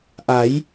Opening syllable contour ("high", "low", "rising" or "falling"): rising